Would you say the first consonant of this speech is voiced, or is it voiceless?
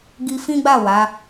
voiced